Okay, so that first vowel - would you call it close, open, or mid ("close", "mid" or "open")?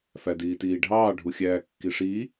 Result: open